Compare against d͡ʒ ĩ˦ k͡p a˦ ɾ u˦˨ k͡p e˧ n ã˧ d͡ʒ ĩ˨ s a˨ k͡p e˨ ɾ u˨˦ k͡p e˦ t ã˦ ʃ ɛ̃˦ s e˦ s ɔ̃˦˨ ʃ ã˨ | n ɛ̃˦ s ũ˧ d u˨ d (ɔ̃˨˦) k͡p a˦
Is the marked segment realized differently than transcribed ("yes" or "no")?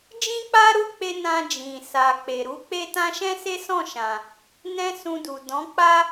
no